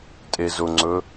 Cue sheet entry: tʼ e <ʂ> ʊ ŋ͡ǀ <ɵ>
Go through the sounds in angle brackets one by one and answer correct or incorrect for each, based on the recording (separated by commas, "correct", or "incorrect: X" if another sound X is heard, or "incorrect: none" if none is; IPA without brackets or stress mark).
incorrect: z, correct